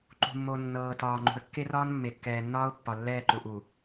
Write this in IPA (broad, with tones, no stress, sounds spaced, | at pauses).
ǃ ṳ˨ mː o˨ nː ɤː˨ t ɒː˨ ŋ͡ǃ ṳ˨ ə̯ kː e˦ r ɒː˦ n mː e˨ kː ɛː˨ nː ɒː˦ ʊ̯ pː ɒ˨ lː ɛː˦˨ ǃ u˨ ʔ u˨